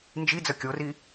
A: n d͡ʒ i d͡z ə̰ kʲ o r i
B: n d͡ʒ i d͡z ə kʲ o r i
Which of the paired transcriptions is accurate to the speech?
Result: B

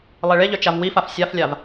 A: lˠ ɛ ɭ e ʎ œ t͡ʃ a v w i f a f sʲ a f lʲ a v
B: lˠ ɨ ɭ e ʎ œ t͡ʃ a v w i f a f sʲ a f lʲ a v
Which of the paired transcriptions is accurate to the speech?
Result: A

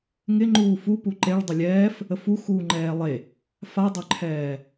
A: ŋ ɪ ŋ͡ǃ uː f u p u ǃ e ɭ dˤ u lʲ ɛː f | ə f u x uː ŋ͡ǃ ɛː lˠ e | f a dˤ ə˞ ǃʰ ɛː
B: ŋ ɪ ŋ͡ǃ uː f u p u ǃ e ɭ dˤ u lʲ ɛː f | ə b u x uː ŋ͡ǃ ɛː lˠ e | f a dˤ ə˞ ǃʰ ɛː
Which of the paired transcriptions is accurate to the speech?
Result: A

